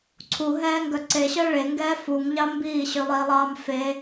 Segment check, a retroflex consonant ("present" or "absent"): present